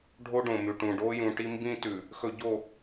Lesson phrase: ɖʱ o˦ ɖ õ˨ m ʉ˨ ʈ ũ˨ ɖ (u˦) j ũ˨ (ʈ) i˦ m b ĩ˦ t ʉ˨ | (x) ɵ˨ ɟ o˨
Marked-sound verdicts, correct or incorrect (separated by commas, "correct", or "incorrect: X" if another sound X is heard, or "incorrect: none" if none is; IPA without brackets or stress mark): incorrect: o˦, correct, correct